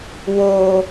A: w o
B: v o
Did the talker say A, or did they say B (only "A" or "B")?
A